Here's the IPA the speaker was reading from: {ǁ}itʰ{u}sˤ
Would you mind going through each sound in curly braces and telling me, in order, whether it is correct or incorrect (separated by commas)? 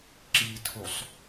correct, correct